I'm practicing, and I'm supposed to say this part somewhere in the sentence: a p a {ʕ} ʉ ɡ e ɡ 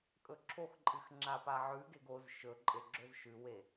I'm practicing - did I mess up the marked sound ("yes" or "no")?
no